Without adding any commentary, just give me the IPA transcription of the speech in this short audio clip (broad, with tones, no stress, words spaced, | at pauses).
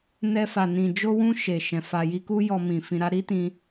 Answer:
nɛ˧fa˨nĩ˨ d͡ʒo˧wũ˧ ʃe˨ʃɛ̃˨ fa˨ji˧ ku˦jɔ˧ mĩ˨fĩ˧ɾa˦ ɾi˦tĩ˧